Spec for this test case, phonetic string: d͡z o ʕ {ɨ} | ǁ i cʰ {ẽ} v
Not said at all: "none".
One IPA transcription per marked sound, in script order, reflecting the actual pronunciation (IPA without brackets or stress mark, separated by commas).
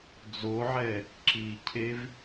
ɛ, e